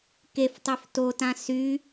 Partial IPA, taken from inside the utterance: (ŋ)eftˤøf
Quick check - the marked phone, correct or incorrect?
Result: incorrect